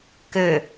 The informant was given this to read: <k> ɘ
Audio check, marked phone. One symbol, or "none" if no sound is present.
k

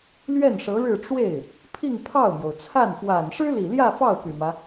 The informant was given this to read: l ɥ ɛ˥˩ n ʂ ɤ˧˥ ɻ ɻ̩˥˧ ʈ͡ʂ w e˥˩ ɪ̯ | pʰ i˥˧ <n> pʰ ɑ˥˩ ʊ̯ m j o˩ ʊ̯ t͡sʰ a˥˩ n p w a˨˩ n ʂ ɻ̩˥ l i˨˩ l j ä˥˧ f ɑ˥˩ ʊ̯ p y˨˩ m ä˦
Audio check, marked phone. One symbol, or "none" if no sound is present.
ŋ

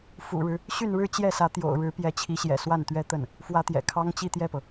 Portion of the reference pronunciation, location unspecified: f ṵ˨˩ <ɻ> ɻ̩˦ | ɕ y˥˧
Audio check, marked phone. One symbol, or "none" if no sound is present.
ɻ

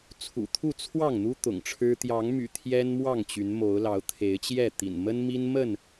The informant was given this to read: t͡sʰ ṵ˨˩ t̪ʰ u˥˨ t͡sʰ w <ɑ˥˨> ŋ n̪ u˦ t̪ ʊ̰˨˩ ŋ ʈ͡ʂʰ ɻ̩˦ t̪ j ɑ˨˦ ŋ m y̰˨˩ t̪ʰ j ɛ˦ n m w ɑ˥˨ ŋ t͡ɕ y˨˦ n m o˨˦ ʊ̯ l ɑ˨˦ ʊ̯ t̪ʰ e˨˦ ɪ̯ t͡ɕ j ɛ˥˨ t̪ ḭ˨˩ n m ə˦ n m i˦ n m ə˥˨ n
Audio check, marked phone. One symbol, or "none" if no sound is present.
ɑ˥˨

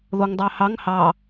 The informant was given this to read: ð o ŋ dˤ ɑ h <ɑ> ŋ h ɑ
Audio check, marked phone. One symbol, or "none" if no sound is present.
ɑ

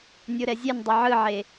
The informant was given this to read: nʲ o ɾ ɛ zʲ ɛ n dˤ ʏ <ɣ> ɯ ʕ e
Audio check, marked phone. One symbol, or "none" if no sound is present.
ʕ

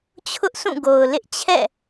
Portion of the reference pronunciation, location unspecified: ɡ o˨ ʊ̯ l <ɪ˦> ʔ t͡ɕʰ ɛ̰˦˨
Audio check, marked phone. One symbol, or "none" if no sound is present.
ɪ˦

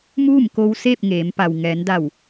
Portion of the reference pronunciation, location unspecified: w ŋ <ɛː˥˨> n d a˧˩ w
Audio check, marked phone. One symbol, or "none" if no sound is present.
ɛː˩˧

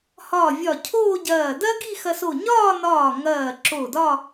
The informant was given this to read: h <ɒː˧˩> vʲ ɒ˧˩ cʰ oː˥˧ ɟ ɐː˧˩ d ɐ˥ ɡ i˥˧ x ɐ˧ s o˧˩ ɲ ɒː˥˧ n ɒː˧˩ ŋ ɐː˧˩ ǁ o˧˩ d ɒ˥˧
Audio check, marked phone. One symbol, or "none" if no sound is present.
ɒː˧˩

